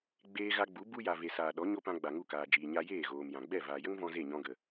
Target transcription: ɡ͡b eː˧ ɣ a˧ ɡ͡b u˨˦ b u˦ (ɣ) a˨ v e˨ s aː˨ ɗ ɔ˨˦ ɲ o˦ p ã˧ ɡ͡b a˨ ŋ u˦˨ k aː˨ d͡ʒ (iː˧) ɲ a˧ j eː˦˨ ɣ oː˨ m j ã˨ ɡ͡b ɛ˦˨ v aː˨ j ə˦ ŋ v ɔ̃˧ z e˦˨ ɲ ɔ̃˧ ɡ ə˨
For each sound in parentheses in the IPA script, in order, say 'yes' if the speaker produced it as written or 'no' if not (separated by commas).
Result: no, no